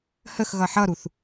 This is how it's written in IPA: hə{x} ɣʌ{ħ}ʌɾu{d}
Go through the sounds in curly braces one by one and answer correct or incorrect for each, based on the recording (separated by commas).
correct, correct, incorrect